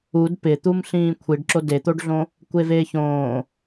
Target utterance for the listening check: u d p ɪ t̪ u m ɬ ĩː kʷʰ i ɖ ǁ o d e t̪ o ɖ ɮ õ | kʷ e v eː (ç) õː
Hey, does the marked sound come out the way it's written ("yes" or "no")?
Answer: yes